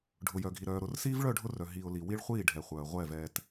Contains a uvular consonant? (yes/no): yes